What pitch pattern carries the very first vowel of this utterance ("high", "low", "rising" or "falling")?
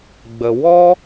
low